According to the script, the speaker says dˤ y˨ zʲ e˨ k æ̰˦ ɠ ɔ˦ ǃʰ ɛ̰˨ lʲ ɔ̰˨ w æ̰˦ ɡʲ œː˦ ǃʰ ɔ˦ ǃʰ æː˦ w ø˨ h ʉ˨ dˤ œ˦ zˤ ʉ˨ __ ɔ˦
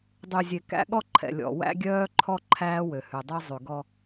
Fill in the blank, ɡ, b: ɡ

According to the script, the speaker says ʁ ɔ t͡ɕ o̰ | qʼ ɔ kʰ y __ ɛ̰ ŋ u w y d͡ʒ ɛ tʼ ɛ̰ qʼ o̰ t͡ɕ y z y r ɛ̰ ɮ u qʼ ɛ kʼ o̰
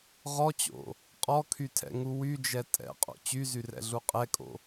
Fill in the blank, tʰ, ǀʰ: tʰ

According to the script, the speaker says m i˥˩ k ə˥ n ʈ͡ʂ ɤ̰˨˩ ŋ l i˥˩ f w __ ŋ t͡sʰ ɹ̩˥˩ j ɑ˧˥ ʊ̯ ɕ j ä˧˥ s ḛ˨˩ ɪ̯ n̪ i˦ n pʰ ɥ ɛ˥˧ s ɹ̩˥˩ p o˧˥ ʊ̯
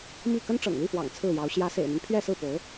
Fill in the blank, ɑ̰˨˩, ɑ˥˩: ɑ̰˨˩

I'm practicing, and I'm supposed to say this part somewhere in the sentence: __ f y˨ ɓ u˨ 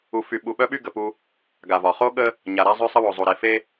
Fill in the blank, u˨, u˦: u˨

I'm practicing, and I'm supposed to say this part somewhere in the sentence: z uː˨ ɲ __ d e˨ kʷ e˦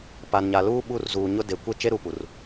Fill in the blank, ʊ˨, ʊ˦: ʊ˦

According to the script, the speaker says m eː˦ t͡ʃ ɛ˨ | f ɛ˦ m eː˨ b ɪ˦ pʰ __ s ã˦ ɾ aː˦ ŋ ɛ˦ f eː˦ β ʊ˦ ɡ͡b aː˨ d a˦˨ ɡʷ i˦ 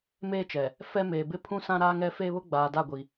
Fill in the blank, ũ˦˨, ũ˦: ũ˦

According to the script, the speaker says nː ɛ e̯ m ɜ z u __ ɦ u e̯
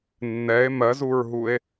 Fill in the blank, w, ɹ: ɹ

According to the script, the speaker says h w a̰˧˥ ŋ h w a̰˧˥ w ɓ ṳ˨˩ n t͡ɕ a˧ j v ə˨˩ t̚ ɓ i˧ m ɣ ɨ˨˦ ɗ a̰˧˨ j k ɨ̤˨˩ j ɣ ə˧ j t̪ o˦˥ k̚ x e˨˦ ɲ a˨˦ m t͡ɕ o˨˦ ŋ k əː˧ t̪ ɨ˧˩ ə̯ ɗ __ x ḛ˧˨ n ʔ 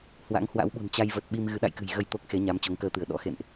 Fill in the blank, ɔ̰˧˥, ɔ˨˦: ɔ̰˧˥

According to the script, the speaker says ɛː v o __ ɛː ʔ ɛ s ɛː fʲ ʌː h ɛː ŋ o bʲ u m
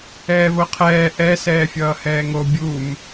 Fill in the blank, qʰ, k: qʰ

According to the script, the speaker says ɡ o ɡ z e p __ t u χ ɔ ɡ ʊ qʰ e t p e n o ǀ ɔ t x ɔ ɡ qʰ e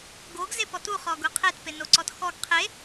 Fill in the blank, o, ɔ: ɔ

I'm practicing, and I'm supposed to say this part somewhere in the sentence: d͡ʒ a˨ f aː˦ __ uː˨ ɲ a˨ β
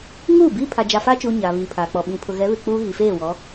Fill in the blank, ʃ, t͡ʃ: t͡ʃ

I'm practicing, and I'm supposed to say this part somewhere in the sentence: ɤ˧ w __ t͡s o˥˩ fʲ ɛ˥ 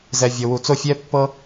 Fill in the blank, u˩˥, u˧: u˧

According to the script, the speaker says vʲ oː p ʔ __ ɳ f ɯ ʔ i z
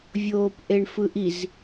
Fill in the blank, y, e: e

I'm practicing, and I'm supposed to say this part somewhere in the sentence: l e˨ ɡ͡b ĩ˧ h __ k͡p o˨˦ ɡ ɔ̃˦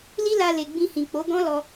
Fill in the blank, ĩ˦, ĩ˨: ĩ˨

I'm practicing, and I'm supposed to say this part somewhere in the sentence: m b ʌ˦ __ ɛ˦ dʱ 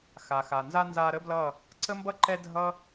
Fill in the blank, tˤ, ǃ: ǃ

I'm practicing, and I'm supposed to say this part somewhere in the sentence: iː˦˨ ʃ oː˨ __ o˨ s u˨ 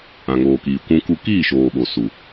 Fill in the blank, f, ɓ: ɓ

